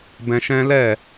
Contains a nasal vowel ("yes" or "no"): yes